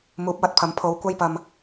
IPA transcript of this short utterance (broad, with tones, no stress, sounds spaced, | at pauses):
m uː˨˥ p̚ w ɐ˧ t̚ pʰ ɐ˨˧ m pʰ o˨˧ w kʷ ɐ˧ j p ɐ˨ m